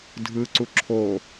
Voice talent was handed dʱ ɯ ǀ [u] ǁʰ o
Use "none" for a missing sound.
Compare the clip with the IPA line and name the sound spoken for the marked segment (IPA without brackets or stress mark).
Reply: u